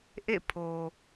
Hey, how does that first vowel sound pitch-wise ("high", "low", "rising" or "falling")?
falling